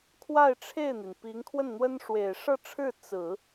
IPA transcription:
kʰ w a˥˧ ɪ̯ ʈ͡ʂʰ e˥˩ ɪ̯ n̪ i˩ n p i˧˥ ŋ kʰ w ə˥˩ n n̪ w ə˥ n ʂ w e˨˩ ɪ̯ ʂ ɤ˥˧ ʈ͡ʂʰ ɻ̩˥˩ t͡s ɹ̩˨˩˦

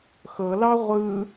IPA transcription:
x ɤ l ɑ ʁʷ ɯ

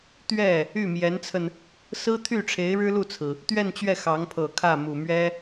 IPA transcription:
t̪ ɥ ɛ˥˩ | y˥˩ m j ɛ˧˥ n t͡sʰ ə˧ n | s ɹ̩˥ t̪ʰ y˥˩ ʈ͡ʂʰ e˧˥ ɪ̯ ɻ ɻ̩˥ l u˥˩ t͡sʰ ɹ̩˩ | t̪ ɥ ɛ˥˧ n t͡ɕ ɥ ɛ˥˩ x ɑ˧˥ ŋ pʰ ɤ˨˩ kʰ ä˥˩ m u˨˩ m ɥ ɛ˥

